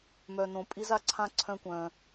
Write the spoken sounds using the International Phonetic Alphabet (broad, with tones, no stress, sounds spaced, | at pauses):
m œ˧ n õ˧ pʼ i˥ z a˧˥ ǀʰ ã˥ ǀʰ œ̃˥ kʷ œ̃˧